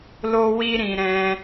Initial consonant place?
alveolar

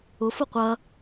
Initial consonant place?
labial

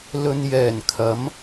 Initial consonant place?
alveolar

